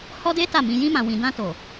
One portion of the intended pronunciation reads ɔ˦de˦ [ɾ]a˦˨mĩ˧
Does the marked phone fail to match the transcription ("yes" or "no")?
yes